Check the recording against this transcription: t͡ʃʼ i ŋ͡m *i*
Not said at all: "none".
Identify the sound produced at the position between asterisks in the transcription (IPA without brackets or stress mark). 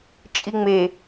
e